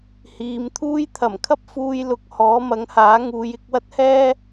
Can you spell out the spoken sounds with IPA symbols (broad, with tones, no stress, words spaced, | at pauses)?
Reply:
hiː˨˧mt̪ʰuː˥j t̪ʰɐ˨˩mkʰɐ˥p̚ fuː˧j lʊ˨˥k̚ hɔː˨˥mɐ˨˥ŋhaː˨˥ ŋuː˨˧jɪ˧k̚ wɐ˥t̚hɛː˥